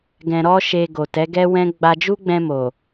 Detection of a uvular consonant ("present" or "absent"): absent